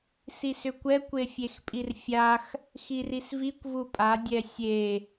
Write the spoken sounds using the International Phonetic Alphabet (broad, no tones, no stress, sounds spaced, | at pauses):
s i s ʏ kʷ ɛ kʷ e fʲ e x pʼ i r fʲ a x | x i r i s v i kʷ v u pʼ a dʲ ɛ sʲ e